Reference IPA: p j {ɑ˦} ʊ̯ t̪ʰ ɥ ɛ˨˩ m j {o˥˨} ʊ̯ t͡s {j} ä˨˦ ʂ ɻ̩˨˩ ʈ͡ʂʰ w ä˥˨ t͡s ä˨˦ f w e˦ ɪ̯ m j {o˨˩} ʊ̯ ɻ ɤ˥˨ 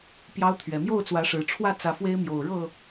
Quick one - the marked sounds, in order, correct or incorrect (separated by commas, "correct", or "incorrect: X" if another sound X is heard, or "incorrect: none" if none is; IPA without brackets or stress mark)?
correct, correct, incorrect: w, correct